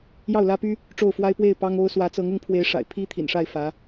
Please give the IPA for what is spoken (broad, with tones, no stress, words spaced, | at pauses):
jɑ˥˩ʊ̯lä˥py˥ | ʈ͡ʂo˥˩ʊ̯fwa˥ɪ̯ pwe˥˩ɪ̯ pɑ˥ŋo˥ʊ̯ swä˧˥t͡sɤ˧˥ŋ ʊ˧˥ŋpʰwe˧˥ɪ̯ʂa̰˨˩ɪ̯ pʰi˥t̪ʰḭ˨˩nʂa˥˩ɪ̯ fä˧˥